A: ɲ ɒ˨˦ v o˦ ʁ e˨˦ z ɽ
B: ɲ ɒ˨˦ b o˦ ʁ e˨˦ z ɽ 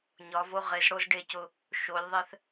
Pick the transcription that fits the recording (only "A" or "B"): A